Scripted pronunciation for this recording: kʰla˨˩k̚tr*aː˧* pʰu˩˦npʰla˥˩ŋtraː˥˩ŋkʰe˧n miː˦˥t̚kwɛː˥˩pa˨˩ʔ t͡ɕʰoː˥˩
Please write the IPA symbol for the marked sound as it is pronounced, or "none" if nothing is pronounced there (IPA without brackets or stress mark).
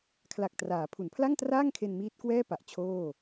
aː˩˦